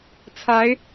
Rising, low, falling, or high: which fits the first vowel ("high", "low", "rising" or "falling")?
rising